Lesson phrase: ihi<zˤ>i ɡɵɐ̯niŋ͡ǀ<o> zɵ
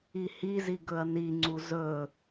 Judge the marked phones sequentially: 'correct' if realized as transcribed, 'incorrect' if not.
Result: incorrect: z, incorrect: u

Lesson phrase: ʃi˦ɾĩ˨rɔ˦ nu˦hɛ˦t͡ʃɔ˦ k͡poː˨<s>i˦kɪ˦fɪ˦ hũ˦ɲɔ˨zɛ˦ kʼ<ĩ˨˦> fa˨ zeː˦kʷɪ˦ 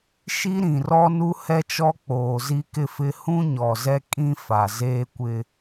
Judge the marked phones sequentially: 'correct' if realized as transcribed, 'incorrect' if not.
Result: incorrect: z, incorrect: ĩ˦

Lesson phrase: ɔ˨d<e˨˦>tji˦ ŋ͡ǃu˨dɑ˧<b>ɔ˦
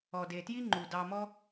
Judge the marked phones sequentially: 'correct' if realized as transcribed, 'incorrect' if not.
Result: incorrect: e˨, incorrect: m

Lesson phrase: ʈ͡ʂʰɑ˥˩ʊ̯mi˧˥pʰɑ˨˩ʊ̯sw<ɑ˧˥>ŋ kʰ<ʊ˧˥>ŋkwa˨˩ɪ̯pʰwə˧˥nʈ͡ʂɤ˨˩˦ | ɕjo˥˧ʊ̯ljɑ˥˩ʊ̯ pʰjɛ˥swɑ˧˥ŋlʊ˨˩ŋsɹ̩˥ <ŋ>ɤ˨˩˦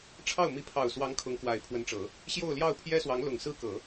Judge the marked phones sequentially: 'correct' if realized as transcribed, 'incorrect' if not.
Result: correct, correct, incorrect: k

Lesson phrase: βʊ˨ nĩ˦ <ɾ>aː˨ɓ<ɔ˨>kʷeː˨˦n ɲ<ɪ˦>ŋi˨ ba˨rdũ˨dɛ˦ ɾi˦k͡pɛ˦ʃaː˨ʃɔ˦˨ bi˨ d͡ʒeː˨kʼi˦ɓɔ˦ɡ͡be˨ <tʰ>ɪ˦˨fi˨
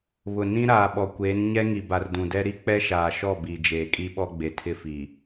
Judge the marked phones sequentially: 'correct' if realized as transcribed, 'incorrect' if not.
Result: correct, correct, incorrect: ɛ˦, correct

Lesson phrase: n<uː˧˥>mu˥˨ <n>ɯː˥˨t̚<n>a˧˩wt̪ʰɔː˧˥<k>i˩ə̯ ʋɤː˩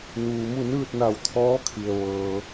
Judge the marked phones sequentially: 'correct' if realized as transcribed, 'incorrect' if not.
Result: incorrect: uː˩, correct, correct, incorrect: kʰ

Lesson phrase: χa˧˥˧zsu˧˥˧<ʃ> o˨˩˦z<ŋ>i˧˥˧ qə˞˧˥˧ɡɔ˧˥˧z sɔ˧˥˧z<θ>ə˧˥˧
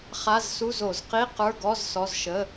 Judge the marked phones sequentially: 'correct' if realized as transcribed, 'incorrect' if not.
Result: incorrect: z, incorrect: q, incorrect: ʃ

